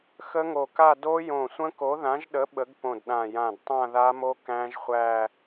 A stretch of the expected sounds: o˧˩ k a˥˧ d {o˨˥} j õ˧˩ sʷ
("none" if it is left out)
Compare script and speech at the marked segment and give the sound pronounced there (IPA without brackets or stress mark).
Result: o˦˥